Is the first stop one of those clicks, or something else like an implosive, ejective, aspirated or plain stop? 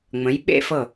implosive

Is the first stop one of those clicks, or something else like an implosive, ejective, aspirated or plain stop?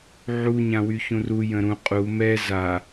ejective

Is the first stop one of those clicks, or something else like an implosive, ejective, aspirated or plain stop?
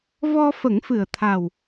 aspirated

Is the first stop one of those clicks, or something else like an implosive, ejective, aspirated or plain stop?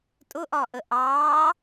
ejective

